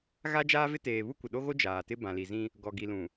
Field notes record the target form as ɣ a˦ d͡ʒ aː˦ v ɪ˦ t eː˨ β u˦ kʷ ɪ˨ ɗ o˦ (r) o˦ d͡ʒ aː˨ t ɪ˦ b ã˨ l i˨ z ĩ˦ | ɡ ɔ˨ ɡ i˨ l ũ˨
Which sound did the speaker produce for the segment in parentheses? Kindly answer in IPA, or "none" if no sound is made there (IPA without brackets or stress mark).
ɣ